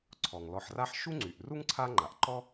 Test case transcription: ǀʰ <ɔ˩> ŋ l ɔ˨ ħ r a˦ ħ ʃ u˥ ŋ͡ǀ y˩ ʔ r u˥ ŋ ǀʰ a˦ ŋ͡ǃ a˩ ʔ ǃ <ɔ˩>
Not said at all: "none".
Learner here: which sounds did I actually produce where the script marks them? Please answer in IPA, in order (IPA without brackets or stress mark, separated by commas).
ɔ˩, ɔ˥